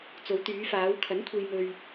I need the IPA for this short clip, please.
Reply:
t͡s o˨˧ w t̪ yː˨˧ f aː˨˧ w kʰ ɐ˨˥ n kʷʰ e˧ j m ɵ˧ ɥ

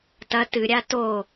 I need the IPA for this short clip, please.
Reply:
t ɐ t ɨ ɾʲ a t o

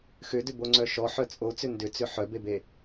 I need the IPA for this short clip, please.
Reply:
x ʏ d ʏ b o ŋ͡ǀ œ ʃ ɔ ħ œ t͡sʼ o t͡s ʏ n d ʏ t͡s ʏ ħ œ b e b e

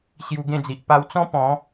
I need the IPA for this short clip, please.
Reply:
ɕ j u˧ ɡ ẽ˥˧ d͡z i˨ ʔ p a˧ w t͡s ɔ̃˦ p ɔ̃˨˦

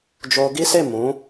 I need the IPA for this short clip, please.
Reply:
d͡ʒ o˧ ɡ i˦ s e˦˨ m ũ˨˦

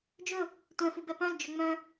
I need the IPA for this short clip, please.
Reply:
d͡ʒ ɵ | tʷ ɛ̃ f u b ɛ p œ̃ l d͡ʒ œ ŋ͡m œ̃

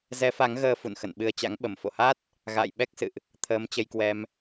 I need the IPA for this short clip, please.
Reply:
z ɛ˨˦ f a˨˦ ŋ ɣ əː˧ f ṵ˧˨ n x ə̰˧˨ n ɓ ɨ˧ ə̯ t͡ɕ a̰˧˥ ŋ ɓ ə˧˩ m f o̰˧˨ h a˦˥ t̚ | ɣ a̰ː˧˨ j ɓ ɛ˦˥ k̚ s ɨ̰˧˨ ʔ | t̪ʰ əː˨˦ m t͡ɕ ə˧ j k w ɛ˧ m

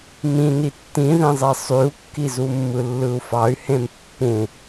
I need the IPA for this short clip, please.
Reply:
m ĩ n i tː ĩ ð ẽ zˤ e sˤ y u̯ kː i z u mː ɯ lː ɯ u̯ f ɑ y̯ h ẽ m pː ũ

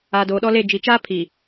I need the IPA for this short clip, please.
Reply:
aː˨ d oː˨ ɗ ɔ˦ l e˦˨ d͡ʒ i˨ t͡ʃ aː˦ pʰ i˨

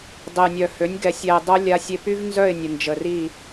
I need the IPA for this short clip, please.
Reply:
dˤ e˨ j nʲ œ˨ h ø˨˦ nʲ ɡ ɛ˨ sʲ ɛ˨ ɪ̯ dˤ œ˧ lʲ a˧ sʲ e˧ p y˦ v n z œ˦˨ ɪ̯ nʲ ə˨ n d͡ʒ ə˨ r i˦˨

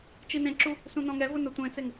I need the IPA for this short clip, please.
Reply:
t͡ʃ i n ẽ ǁ u | s ũ n ɔ̃ ŋ ɛ v ʊ n ʊ tʷ ẽ t͡s e ŋ

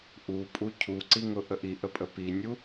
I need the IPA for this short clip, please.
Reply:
ʔ u pʼ u cʰ u ǀ i ŋ ʊ ʔ ə ʔ i ʔ ə pʼ ə p i nʲ u

